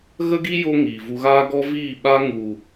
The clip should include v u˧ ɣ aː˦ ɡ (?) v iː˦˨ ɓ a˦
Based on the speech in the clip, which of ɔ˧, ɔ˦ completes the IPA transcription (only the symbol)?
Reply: ɔ˦